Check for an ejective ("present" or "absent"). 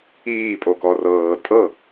present